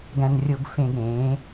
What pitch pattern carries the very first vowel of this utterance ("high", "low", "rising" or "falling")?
low